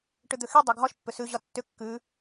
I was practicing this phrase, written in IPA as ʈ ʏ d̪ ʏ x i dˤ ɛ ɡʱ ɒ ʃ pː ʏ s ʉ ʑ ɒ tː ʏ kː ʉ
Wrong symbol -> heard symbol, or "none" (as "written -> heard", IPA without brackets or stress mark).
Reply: none